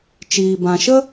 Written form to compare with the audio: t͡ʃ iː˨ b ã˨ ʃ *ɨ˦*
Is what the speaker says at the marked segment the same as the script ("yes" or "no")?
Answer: no